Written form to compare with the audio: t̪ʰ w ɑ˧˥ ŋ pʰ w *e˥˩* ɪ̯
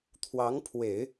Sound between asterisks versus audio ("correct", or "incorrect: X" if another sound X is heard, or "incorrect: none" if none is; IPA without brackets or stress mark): incorrect: e˨˩˦